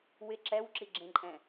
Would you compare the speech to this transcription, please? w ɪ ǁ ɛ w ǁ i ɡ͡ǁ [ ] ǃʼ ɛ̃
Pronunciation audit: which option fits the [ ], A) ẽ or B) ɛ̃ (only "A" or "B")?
A